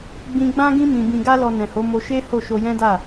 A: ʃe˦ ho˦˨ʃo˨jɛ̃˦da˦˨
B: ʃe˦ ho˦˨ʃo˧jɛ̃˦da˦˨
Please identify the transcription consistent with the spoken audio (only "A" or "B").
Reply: B